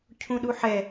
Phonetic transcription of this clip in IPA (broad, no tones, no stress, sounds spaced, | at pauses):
cʰ ũ ɗ u ħ ɛ